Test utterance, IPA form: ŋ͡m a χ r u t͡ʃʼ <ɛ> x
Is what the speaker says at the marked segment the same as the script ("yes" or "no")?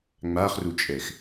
yes